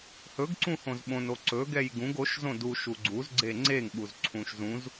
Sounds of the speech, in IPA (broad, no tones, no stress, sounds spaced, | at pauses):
h ɵ ɡ ǀ ũ h õ z ɓ õ n o ǀ ɵ ɡ ɛ j ɡ ũ ɡ o ʃ z õ d u ʃ u ɡ͡ǀ u z ɡ͡ǀ e ŋ͡ǀ e ŋ ɓ u z ǀʰ ũ ʃ z ũ z